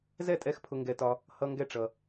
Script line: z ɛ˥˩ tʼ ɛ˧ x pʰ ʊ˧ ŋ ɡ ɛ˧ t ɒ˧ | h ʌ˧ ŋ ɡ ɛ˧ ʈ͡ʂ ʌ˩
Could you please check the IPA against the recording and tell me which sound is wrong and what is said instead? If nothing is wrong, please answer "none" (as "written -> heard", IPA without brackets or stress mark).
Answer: none